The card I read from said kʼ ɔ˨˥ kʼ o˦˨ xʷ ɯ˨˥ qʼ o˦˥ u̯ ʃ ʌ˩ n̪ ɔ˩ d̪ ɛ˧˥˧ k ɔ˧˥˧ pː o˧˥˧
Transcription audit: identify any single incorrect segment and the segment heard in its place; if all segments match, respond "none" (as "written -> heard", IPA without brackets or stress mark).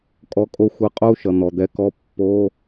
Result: ɛ˧˥˧ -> ɛ˨˥